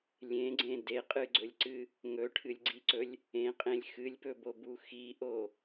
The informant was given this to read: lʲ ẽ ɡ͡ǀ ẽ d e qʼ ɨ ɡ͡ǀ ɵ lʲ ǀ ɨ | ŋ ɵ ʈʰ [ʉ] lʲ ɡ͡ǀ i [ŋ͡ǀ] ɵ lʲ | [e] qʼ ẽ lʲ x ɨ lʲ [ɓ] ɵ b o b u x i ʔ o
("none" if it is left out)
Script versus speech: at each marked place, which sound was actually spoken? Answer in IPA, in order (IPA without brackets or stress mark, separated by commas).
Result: ɨ, ǀ, ẽ, p